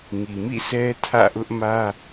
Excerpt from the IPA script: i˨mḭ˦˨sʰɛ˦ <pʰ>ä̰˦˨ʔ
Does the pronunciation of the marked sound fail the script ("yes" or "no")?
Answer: yes